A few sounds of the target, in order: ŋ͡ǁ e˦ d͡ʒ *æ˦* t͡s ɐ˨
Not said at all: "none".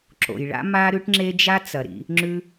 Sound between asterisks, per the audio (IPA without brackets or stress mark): a˦